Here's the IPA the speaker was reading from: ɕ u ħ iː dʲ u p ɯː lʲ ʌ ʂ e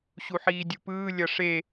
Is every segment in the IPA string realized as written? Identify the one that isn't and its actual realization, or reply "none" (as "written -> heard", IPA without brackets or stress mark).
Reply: none